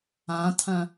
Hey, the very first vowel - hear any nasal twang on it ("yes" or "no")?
yes